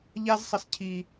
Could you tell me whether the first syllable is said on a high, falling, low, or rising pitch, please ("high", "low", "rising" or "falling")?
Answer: high